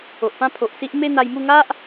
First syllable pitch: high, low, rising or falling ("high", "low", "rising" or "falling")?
low